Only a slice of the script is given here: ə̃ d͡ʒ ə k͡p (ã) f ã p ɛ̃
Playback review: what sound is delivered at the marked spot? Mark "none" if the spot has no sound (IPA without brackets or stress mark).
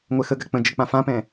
ã